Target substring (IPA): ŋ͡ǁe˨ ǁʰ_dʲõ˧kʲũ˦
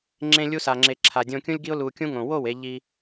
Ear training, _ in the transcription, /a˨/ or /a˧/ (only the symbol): a˨